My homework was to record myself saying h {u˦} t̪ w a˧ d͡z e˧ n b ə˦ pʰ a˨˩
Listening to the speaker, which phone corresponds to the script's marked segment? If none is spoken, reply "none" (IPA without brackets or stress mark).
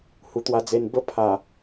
u˨˩